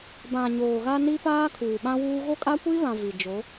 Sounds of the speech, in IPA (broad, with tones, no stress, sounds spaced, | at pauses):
b ã˨ ɲ oː˨ ɣ a˦ n i˦ p aː˦ kʰ uː˨ ɓ ã˦ w uː˦ ɣ o˦ kʼ a˦ kʷ iː˦ β ã˨ v i˨ d͡ʒ o˨˦